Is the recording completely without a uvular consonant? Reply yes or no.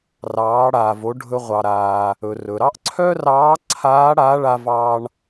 no